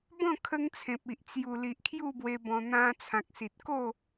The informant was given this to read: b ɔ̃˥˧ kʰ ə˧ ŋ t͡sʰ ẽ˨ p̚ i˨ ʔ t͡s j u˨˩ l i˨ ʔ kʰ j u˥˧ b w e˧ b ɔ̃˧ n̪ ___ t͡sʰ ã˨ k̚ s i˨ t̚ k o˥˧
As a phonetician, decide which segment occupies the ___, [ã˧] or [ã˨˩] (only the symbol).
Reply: ã˧